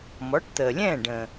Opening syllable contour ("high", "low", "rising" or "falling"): rising